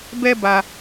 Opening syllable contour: high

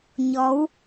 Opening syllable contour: rising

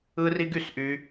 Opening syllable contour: high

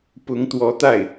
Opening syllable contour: rising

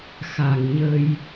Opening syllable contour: low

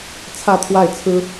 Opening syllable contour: falling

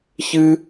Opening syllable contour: high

